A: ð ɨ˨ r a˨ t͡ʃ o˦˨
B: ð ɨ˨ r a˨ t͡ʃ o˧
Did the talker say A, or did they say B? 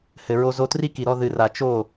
A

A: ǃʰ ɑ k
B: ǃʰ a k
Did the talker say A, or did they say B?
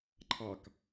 A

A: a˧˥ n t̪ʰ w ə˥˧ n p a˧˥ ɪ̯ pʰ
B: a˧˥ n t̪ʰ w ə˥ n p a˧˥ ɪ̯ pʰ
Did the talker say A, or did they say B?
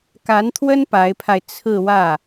B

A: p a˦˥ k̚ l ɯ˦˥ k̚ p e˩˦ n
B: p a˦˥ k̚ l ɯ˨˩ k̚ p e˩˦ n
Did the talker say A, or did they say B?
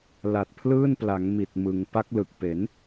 B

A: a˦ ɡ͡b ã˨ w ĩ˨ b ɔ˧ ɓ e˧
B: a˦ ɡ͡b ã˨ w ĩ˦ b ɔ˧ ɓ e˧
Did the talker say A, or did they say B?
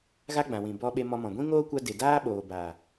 A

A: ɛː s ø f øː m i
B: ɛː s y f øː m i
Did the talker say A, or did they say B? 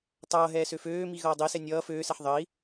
A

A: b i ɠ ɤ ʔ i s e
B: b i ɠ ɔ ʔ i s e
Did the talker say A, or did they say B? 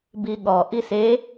B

